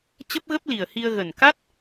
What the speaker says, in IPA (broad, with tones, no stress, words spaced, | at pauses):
t͡ɕə˦˥p̚ɣə˦˥p̚li˨˩ə̯hi˧ə̯ ɣə˨˩n ka˦˥t̚